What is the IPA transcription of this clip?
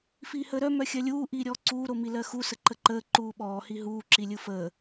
f iː h əː ɾ œ m œ xʲ ɜ lʲ uː ʔ iː ɾʲ ɔː ǀ uː ɾ o m i l ɜ x u s ə ǃ ə ǃ əː ǃ uː ɓ ɔː h i ɦ uː ǁ i lʲ ɯ f əː

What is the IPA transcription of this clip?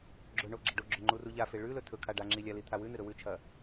ɡ͡ǁ ɵ ɳ o ɡ͡ǁ ɐ ɖ o ɡ͡ǁ ɵ ŋ͡ǃ u r u ʎ a f e ɭ ʉ l ɵ tʰ ɵ kʰ a ɖ a ŋ͡ǁ i lʲ a l i t̪ʰ a w ʉ n ɨ ɾ ɵ w ʉ t͡ʃʰ ɐ

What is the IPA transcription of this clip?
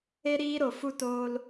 e˧ ɾ iː˧ ɾ o˨ f u˧ t oː˧ l

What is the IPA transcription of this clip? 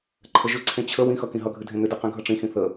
ǃʰ ə ʒ ʏ ǀʰ ẽ t͡ɕʰ ə w ĩ x ʌ k ĩ ɦ ʌ ɡʱ ɨ dʱ ẽ n̪ ʏ d ɨ q ĩ ɡʱ ʌ ʈ͡ʂ ĩ x ĩ θ ə

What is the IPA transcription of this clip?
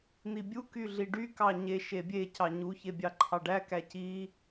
n̪ i bʲ u k y ɮ i ɖ y k ɑ ɲ e ʃ e bʲ e c ɑ ɲ u ç e bʲ ɑ ǃʰ ɑ ɖ æ k æ c i

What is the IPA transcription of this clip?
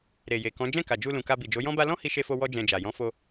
ɾ e˨ j e˨ k ɔ̃˨˦ d͡ʒ ɛ̃˦˨ k a˨ d͡ʒ u˧ l ũ˨ k a˧ b i˨ d͡ʒ o˨˦ j ɔ̃˦ b a˦ l ɔ̃˦ h i˧ ʃ e˧ f o˧ w ɔ˦ d͡ʒ ɛ̃˧ d͡ʒ a˨ j ɔ̃˨˦ f o˧

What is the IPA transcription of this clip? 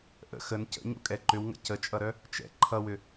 ʔ ə̰ x ə n c ə̰ ɲ ṵ kʼ ɛ ǃ ʏ w ŋ ə̰ c ə t͡ʃʼ ʌ ɾ œ | t͡ʃ ɛ̰ ǃʰ ʌ w ʏ

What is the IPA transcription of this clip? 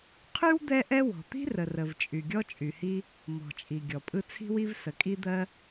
qʰ y˥ w d̪ ɛ˥ ʔ ɛ˥ w ɔ̤˩ t̪ i̤˥ r ə˩ r ə˩ v t͡ʃʼ y˩ ɡʲ ɔ˥ t͡ʃʼ y˩ h i˥ | m ɔ̤˩ t͡ʃʼ i˩ ɡʲ ɔ˩ pʼ ɯ˥ t͡sʰ i̤˥ w i˥ v s ə˩ kʼ i˥ d̪ ɜ˥

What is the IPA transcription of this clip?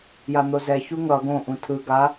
j a n̪ o z ɛ ç u ŋ ʌ ɡ õ ʔ ũ tʰ ɯ ɡ a

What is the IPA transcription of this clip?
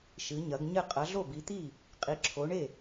ʃ ɨ˨˦ ɲ ɐ˨˦ ɡ ɲ ɘ˥˩ qʼ ɐ˨˦ ɮ o˥˩ b i˨˦ t̪ i˥˩ | qʼ i˨˦ ǁʰ o˨˦ ɳ e˥˩

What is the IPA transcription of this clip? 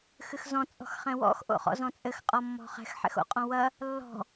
x ɨ x z ɔ̃ t͡sʼ ɔ̤ x χ ɛ̃ w ɔ̰ x ʔ o̰ χ ɔ̰ z ɔ̃ t͡sʼ ɘ x qʼ ɔ mː ɔ̤ χ ɛ̤ x ħ ɛ̰ x o̰ qʼ ɔ̃ w ɐ | lː ɔ̤

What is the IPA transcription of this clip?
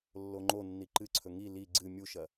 lː o ŋ͡ǃ o nː i ǃ ɨ ǀʰ ɵ ŋ i l i ɡ͡ǀ ɨ mʲ u ʃ ɐ

